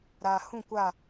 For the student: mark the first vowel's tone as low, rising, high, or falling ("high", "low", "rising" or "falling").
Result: low